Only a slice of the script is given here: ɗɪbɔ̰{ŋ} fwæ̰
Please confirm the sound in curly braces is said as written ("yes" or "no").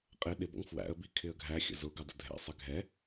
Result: yes